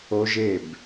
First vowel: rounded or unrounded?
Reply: rounded